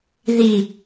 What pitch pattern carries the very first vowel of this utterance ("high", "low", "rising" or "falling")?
low